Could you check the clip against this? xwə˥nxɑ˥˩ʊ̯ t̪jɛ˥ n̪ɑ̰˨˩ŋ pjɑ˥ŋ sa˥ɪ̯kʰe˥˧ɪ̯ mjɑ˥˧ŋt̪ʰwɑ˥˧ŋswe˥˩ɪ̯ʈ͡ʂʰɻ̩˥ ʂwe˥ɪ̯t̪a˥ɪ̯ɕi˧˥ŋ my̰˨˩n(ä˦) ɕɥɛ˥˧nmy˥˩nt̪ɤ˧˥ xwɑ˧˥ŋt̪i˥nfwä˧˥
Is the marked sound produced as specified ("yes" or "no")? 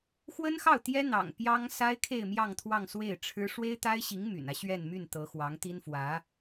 yes